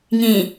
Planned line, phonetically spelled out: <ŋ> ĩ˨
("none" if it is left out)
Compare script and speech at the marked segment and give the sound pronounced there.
ŋ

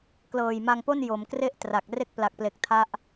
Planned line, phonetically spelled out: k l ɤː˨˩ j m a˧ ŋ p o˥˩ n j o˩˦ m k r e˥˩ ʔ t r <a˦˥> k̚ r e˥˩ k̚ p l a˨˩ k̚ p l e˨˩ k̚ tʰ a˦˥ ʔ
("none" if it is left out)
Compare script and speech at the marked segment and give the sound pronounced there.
a˨˩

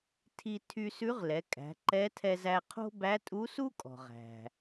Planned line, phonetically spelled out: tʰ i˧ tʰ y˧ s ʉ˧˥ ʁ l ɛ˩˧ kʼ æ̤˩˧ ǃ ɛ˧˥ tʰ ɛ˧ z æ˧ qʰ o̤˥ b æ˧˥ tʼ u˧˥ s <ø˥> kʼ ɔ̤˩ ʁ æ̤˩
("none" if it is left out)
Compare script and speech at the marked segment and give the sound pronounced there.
u˥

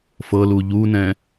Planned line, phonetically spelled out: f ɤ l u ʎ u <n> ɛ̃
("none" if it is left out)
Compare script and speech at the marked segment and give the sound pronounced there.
n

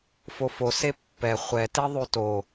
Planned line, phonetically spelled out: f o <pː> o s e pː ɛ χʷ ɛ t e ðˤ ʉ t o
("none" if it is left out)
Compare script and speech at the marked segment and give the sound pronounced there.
f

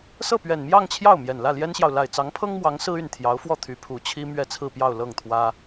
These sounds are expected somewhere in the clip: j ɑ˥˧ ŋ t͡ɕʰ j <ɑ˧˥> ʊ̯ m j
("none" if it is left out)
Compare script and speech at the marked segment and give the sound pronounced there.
ɑ˥˩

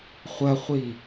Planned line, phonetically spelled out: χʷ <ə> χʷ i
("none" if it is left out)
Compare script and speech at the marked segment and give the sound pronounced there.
ɐ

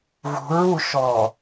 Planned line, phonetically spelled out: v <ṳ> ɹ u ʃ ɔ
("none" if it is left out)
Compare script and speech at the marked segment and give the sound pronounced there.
ṳ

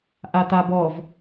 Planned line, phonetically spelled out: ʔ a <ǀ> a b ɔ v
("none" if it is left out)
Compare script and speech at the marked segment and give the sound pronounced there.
t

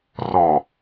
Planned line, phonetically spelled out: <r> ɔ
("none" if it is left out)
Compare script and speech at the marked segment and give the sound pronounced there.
r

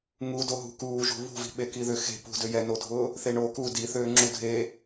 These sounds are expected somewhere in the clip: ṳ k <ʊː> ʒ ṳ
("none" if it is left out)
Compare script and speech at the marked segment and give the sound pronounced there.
uː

